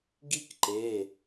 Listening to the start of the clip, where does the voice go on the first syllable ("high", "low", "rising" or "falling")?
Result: high